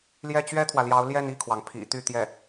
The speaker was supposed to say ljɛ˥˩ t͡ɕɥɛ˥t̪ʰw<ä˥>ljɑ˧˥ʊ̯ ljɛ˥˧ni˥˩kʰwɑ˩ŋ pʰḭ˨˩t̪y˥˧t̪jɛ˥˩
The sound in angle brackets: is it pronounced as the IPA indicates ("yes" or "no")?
no